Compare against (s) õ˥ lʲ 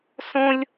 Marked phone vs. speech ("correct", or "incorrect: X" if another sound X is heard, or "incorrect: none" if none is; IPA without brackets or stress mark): correct